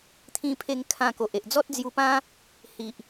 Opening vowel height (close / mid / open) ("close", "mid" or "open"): close